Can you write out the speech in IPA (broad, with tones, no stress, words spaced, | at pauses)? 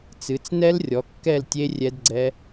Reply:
t͡sɨ˩˧t͡snɛ˦˥lrʲɔ˩˧ kːɛ˥˨ltʲe˦˥ rʲɛ˦˥dɡ͡ǀɛ˦˥